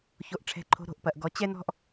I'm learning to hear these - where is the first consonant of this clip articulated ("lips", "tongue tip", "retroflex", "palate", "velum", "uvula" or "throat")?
palate